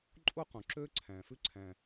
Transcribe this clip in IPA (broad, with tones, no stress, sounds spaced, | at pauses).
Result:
ǃʼ u˥ q ũ˩ ǁ ø˥ ǀʰ æ̃˩ f ʉ˥ ǀʰ æ̃˩